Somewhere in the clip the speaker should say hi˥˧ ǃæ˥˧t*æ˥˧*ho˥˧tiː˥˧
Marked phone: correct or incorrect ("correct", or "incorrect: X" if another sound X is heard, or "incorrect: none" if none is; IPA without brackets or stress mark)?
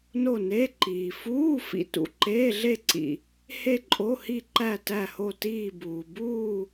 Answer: correct